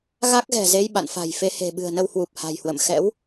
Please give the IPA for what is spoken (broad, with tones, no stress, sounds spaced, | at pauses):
ɣ a˦˥ k̚ ɣ ɛ̤˨˩ z e˧ j ɓ a̰˧˨ n f a̤˨˩ j f e˨˦ h e̤˨˩ ɓ ɨ̤˨˩ ə̯ n ə˧ w h w u˨˩ p̚ h a̤˨˩ j h w ə̰˧˨ m x ɛ̰˧˥ w